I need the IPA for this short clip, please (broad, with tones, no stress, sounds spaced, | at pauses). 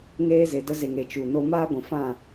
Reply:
ŋ eː˧ z e˨ d ə˧ z e˨ ŋ e˨ t͡ʃ u˨ n o˧ m aː˦ ɡʷ ĩ˨ f ã˦˨